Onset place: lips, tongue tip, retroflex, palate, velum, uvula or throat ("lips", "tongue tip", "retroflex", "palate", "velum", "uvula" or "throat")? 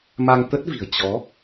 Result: lips